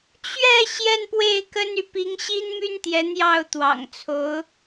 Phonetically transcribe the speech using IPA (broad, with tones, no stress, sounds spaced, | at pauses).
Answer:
t͡ɕ ɥ ɛ˥˧ ɕ j ɛ˥˧ n p w e˥˩ ɪ̯ k ə˥ n y˨ p i˧˥ ŋ ɕ i˥ n m y˥ n t̪ j ɛ˧˥ n̪ j ɑ˥˩ ʊ̯ t̪ w ɑ̰˨˩ ŋ t͡sʰ o˧˥ ʊ̯